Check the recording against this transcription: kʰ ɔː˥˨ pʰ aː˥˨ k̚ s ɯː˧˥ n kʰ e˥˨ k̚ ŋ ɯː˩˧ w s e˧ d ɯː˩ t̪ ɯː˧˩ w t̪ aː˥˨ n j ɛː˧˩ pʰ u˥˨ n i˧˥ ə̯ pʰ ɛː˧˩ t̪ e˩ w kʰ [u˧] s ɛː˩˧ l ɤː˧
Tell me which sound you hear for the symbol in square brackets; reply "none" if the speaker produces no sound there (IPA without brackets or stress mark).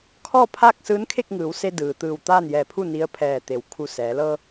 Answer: u˧